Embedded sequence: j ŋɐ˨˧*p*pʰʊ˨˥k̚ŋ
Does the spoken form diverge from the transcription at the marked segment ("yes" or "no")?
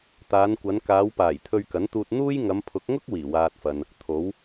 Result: yes